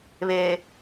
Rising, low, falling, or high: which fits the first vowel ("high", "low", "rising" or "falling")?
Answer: low